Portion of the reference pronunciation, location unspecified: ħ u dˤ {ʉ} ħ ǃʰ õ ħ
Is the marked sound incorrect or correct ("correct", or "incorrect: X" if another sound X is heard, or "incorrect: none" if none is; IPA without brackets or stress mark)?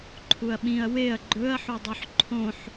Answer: correct